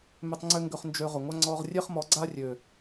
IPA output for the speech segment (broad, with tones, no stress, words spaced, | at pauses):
mʏ˧tˤ ŋ͡ǀʏ˦ŋɡʏ˧χnd͡ʒø˧ ʁʏ˨ŋʷa˦ ŋ͡ǀɔ˧ʁ rʲe˦χmɔ˨˦ɡ͡ǀa˦rʲø˨